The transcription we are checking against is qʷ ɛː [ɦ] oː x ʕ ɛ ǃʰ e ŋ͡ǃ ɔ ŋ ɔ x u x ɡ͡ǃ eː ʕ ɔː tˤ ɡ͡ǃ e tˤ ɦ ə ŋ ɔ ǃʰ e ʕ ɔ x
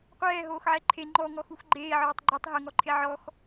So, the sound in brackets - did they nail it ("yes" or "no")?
yes